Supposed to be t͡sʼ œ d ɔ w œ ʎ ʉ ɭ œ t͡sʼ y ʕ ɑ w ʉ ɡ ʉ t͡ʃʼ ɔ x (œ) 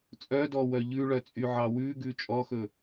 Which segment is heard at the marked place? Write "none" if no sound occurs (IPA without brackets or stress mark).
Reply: ɵ